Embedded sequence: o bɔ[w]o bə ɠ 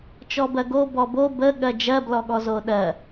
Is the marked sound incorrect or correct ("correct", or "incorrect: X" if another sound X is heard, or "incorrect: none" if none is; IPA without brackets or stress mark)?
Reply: incorrect: b